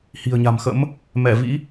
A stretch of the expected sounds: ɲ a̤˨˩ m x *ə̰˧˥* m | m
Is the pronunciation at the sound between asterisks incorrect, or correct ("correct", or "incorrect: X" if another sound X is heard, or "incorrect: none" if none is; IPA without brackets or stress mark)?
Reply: correct